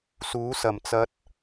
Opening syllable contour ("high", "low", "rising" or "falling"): rising